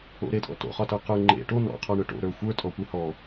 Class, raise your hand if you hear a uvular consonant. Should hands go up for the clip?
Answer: yes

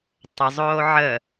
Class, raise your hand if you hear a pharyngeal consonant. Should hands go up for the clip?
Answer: yes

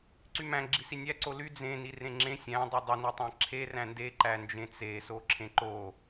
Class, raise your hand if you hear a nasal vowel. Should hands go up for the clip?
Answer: yes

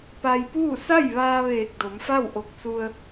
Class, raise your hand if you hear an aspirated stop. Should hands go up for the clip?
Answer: no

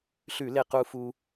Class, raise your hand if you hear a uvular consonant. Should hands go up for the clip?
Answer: yes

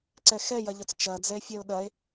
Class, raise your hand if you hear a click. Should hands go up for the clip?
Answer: yes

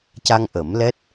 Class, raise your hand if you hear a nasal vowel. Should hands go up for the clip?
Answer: no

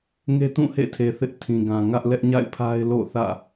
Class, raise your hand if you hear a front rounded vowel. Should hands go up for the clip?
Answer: no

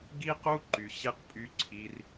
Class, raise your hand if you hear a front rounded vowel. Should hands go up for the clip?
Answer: yes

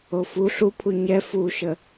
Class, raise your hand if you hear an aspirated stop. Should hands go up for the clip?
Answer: yes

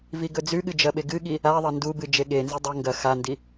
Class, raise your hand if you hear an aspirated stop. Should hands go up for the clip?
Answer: no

